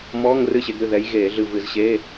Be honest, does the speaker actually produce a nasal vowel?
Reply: no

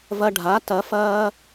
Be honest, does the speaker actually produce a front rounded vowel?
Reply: no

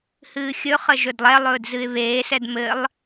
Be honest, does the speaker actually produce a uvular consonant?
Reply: yes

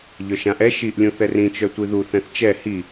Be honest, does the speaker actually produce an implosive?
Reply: no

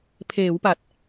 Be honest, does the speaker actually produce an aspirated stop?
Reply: yes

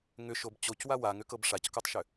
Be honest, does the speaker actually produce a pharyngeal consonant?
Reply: no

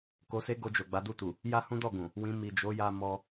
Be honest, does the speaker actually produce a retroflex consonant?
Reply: no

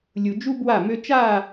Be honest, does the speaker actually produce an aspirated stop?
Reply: no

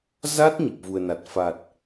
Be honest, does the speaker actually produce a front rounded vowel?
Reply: no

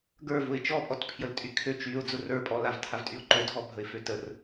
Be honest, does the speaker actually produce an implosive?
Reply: no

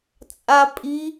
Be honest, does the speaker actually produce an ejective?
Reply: yes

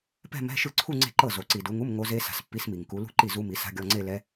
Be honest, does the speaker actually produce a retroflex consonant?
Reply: no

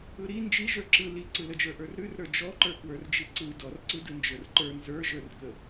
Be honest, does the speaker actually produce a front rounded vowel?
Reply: no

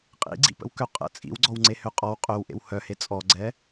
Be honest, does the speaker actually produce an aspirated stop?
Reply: no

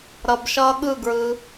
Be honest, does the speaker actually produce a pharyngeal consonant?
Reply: no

